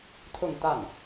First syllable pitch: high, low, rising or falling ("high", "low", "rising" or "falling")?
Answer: falling